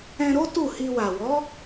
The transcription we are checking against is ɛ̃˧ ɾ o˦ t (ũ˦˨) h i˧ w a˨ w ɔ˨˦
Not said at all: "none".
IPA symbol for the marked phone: u˦˨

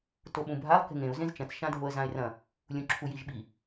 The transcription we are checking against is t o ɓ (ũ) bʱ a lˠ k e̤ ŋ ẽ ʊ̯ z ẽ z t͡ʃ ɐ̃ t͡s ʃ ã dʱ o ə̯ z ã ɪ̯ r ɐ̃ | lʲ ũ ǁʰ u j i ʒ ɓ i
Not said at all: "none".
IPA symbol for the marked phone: ũ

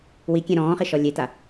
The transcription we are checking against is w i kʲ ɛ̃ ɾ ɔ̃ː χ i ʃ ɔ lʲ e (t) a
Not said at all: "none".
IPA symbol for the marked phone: t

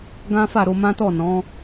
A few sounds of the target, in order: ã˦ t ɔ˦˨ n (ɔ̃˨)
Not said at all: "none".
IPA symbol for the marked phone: ɔ̃˨˦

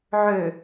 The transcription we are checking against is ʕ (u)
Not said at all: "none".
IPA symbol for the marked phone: ø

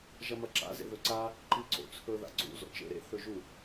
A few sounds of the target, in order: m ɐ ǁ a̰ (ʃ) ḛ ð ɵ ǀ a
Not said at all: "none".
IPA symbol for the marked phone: z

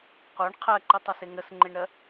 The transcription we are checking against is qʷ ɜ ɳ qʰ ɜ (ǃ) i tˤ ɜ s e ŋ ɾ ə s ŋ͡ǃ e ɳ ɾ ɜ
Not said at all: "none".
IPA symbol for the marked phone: ǃ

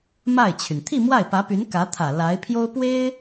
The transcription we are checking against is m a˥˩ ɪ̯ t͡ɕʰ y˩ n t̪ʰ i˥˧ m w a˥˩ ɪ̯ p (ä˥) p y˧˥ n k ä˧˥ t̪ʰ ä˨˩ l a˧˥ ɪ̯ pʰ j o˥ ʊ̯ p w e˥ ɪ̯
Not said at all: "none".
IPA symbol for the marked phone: ä˧˥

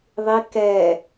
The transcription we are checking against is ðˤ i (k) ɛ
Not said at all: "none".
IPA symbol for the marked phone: k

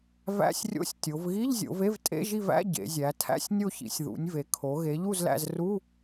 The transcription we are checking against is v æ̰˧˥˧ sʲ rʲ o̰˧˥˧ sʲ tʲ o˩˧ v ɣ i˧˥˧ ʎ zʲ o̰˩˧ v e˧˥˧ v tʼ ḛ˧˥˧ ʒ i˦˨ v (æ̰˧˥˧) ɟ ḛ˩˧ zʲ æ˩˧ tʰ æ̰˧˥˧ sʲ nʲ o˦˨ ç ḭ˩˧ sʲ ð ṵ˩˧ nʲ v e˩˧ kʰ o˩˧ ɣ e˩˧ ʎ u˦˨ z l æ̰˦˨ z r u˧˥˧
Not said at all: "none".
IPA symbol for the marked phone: æ̰˧˥˧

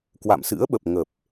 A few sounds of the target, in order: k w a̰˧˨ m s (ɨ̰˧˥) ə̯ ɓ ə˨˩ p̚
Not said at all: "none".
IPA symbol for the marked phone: ɨ̰˧˥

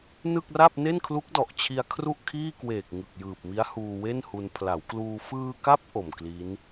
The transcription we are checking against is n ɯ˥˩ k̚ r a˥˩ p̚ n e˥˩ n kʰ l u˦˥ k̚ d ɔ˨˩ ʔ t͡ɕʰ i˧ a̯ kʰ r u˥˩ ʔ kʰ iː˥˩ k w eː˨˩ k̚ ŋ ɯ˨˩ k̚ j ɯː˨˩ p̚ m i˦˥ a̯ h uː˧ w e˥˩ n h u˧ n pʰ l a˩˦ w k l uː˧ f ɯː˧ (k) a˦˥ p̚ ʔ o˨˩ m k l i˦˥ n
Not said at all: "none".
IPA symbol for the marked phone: k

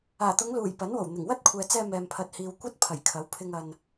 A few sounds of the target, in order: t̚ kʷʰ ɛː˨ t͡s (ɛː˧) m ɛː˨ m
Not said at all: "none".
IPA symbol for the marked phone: ɛː˧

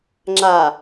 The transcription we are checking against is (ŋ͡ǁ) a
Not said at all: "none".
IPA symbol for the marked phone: ŋ͡ǁ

